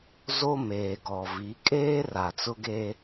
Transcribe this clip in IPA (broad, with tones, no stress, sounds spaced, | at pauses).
z o˦ m eː˨ ɡ ɔ˨ v i˨˦ kʼ eː˦ r a˨ t͡s ʊ˦ ɡ eː˦